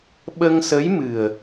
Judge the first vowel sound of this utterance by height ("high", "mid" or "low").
mid